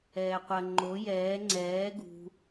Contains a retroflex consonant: no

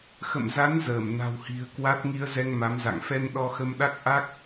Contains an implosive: yes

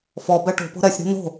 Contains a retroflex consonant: yes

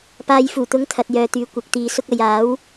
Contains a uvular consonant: no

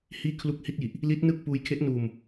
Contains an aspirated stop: yes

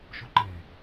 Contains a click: yes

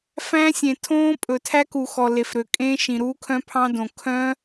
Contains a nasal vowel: yes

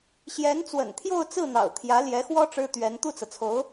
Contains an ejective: no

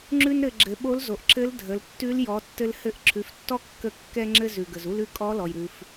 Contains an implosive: yes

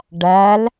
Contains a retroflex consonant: yes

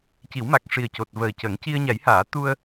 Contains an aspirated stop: no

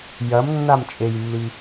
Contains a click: no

